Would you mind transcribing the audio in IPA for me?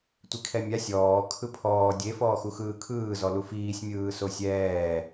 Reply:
tʷ i kʰ ɛ mʲ a sʲ ɔː kʰ ɯ pʰ ɔː dʲ e f ɔː x u x ɯː kʰ ɯː z ɔ l u f iː sʲ mʲ ɯː s o sʲ ɛː

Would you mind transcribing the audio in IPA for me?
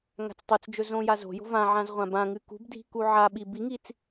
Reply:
ŋ a̤ t͡s tˤ o t͡s d͡ʒ ɵ z õ j a z o̤ j o̤ v ã ʕ ã z ʁʷ ã b ã ŋ ɨ k ṳ b dʱ i̤ k u ʕ a ɓ i b i ŋ i t͡s

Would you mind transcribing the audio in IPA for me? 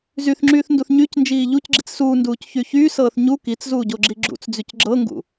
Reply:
z y θ ŋ͡ǁ yː θ n d u θ ɲ y c n d͡ʒ iː ʎ u c ɡ͡ǁ i t͡s s uː n d uː c ç y ç yː s ɤː θ ɲ u k i t͡s z uː ɟ o ɡ͡ǁ i ɡ͡ǁ ṵ t͡s d͡z y c ɡ͡ǁ ɤ ŋ ɡ ṵ

